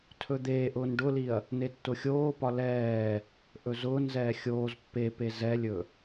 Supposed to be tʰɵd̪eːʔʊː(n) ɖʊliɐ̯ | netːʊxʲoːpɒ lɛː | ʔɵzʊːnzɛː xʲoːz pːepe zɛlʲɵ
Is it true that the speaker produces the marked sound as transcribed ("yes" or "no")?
yes